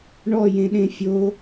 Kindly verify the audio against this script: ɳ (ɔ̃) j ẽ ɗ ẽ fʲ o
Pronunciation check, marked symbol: incorrect: ɔ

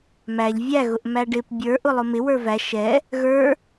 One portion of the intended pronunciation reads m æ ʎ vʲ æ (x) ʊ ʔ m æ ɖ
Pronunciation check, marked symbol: incorrect: ɣ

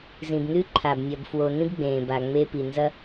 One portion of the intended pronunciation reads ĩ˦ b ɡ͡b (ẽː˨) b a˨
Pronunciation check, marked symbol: correct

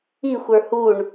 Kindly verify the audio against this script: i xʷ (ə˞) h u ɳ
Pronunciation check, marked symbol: correct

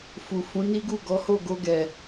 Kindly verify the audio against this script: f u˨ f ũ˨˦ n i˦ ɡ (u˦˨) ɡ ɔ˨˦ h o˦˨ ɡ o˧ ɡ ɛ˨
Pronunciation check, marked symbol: correct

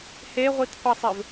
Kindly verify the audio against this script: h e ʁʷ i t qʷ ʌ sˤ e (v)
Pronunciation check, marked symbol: correct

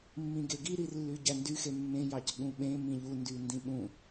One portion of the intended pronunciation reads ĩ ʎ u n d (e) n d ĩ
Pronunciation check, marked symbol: incorrect: y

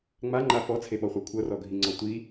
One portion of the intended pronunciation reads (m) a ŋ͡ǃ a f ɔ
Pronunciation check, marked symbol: incorrect: ŋ͡m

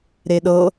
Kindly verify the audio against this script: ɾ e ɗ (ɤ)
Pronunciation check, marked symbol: correct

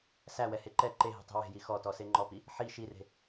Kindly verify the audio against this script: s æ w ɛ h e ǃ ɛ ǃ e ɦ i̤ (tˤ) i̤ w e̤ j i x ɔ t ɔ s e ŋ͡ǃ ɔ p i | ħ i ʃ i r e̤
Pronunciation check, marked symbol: correct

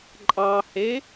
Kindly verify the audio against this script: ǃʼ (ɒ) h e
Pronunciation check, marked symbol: incorrect: ɑ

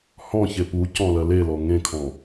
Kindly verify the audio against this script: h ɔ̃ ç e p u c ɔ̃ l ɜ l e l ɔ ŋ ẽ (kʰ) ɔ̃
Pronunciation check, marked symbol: correct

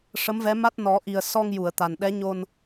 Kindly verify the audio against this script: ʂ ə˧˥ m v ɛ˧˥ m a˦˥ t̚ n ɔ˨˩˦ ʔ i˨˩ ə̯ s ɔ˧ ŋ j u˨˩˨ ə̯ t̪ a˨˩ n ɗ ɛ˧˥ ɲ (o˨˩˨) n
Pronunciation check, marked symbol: incorrect: o˧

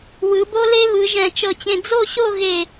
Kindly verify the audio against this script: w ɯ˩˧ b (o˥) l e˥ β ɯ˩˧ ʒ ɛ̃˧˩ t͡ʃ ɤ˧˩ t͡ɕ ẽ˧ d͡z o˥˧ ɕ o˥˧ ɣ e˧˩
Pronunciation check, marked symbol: correct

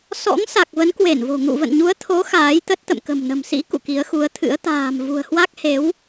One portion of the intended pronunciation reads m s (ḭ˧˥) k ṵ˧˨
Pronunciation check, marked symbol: correct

